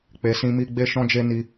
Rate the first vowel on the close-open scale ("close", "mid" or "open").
mid